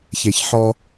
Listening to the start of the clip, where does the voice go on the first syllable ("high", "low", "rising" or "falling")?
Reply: low